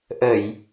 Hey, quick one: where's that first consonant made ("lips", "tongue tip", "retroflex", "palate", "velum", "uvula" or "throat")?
throat